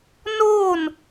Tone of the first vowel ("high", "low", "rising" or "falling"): falling